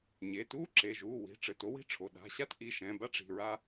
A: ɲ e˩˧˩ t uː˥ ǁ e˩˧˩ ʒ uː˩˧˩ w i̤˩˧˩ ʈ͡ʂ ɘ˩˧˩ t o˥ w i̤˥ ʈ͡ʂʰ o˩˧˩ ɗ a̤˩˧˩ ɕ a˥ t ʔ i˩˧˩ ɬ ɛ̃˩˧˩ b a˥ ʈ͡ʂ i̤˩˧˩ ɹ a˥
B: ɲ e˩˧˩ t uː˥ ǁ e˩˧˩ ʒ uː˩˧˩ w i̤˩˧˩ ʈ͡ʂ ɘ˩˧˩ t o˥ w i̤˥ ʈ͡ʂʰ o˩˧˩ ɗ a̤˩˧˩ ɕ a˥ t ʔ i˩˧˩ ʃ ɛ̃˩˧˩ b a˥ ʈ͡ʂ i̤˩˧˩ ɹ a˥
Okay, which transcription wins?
B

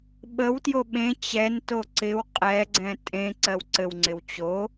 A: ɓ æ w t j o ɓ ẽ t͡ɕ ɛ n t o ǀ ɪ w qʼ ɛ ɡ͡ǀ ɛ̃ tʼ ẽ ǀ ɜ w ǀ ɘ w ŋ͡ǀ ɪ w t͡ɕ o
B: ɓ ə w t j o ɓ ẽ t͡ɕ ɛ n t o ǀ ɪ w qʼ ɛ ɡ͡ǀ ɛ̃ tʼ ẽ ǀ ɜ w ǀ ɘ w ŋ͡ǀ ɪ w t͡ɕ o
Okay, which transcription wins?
B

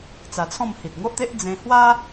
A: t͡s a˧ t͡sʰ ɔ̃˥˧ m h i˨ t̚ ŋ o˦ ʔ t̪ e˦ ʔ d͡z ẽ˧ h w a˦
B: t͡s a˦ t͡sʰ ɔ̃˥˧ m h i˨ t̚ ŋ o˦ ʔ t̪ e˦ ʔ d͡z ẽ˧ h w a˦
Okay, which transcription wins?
A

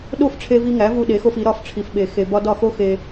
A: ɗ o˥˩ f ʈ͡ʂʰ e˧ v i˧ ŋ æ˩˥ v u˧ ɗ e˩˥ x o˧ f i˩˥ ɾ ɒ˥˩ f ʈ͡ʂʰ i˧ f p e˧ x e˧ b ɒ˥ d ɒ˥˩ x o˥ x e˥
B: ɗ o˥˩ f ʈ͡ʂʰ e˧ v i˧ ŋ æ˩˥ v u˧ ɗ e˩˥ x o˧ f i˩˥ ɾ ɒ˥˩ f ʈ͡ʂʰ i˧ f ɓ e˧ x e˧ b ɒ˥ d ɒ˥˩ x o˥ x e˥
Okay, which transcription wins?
B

